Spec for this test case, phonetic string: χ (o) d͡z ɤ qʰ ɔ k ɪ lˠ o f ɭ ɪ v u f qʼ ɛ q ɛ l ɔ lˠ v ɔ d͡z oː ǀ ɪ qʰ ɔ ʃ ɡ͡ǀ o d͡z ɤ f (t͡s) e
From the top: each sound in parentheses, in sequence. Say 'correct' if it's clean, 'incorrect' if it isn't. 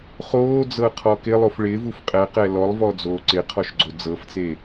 incorrect: oː, correct

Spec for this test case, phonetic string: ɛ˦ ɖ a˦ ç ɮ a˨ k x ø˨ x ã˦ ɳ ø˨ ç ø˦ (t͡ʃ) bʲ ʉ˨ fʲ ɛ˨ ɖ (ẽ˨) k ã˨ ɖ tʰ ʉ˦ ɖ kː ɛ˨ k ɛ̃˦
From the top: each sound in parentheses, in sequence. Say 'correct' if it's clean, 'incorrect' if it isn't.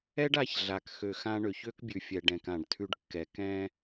incorrect: k, incorrect: ɛ̃˨

